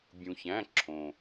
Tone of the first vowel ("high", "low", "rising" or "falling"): low